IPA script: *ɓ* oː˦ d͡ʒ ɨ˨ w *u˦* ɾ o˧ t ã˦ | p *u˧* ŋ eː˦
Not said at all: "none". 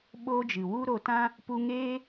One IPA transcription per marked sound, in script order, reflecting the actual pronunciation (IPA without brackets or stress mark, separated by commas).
ɓ, u˦, u˧